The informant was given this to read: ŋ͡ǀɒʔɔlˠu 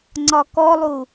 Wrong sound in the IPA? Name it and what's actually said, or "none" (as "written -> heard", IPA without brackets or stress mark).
ʔ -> k